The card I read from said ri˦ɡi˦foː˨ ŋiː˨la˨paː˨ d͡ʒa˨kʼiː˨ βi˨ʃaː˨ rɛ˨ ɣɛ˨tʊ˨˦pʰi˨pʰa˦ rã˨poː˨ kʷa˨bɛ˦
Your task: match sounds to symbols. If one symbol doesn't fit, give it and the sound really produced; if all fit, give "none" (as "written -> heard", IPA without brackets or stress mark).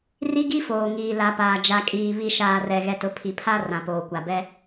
none